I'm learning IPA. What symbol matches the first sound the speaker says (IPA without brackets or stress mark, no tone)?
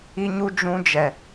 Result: i